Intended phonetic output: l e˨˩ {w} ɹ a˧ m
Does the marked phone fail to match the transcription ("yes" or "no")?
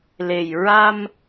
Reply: yes